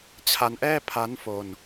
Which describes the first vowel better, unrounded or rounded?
unrounded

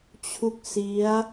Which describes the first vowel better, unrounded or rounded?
rounded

